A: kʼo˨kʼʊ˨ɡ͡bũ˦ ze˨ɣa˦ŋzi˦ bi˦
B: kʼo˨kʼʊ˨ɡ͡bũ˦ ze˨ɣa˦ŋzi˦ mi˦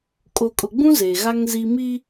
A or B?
B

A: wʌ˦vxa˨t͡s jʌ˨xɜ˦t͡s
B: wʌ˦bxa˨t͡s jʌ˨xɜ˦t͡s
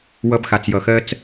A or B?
B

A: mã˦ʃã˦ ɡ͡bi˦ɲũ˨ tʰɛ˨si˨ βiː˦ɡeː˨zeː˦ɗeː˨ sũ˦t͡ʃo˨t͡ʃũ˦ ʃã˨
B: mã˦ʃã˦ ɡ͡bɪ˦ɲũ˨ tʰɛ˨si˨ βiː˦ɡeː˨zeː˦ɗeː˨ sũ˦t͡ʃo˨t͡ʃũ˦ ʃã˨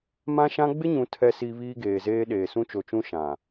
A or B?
B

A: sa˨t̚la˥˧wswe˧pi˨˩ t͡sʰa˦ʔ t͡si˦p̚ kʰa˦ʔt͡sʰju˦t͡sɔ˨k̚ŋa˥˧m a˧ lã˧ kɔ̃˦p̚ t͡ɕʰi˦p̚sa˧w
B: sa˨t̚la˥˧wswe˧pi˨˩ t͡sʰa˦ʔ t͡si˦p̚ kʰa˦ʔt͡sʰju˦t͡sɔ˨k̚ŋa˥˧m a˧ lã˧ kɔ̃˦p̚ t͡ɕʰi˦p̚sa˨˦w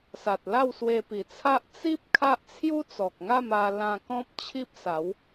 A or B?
B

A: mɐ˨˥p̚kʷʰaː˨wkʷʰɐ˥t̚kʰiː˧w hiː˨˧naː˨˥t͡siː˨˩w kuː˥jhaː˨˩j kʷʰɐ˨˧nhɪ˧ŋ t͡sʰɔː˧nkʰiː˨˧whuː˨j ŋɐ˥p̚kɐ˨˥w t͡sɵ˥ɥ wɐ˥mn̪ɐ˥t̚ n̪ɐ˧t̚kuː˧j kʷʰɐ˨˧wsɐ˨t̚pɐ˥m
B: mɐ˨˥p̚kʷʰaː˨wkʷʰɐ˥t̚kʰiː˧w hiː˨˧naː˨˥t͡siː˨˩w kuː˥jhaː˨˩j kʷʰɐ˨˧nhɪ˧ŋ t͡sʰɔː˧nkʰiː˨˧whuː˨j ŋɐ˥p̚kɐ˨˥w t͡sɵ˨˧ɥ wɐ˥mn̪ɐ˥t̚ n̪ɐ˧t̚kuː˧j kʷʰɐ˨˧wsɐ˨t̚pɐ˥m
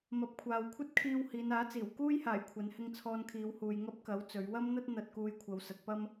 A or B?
B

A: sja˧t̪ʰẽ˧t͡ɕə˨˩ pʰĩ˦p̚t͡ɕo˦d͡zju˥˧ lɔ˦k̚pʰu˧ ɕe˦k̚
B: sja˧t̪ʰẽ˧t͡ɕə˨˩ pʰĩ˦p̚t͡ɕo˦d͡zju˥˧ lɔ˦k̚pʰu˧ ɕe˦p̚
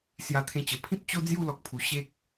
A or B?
A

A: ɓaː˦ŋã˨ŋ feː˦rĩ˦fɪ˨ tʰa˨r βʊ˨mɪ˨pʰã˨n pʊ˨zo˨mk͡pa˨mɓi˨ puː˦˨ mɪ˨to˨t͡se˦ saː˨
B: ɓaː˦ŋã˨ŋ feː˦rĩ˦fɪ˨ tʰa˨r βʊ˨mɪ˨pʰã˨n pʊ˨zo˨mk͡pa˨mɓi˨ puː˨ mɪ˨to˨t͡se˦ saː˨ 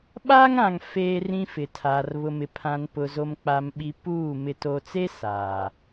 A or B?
A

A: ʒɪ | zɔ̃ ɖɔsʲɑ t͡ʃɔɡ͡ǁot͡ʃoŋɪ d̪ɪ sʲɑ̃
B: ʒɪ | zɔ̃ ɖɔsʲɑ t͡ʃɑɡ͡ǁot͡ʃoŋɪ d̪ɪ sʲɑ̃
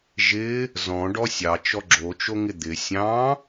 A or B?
A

